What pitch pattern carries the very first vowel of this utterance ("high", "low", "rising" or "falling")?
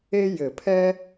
high